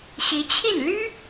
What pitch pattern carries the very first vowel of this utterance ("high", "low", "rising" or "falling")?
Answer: rising